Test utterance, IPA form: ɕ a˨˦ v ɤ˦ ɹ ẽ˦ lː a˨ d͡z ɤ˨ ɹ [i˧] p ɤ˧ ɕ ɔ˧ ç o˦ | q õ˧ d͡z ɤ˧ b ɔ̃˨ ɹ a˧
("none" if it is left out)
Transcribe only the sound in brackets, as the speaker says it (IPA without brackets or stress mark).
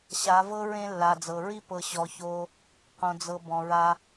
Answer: i˦